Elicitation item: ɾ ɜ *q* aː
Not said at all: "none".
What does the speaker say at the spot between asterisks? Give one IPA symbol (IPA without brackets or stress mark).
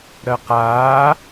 q